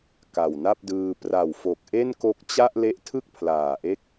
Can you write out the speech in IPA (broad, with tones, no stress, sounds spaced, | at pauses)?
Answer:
k a˨˩ w n a˥˩ p̚ d ɯː˧ p r a˨˩ w f o˨˩ k̚ ʔ e˥˩ n k o˦˥ k̚ t͡ɕ a˥˩ ʔ l e˦˥ ʔ tʰ ɯ˥˩ k̚ pʰ l aː˨˩ ʔ e˦˥ k̚